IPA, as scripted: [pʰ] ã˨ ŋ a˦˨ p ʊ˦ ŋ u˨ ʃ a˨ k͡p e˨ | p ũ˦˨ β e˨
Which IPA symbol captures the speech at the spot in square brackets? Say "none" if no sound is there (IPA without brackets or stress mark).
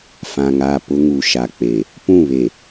f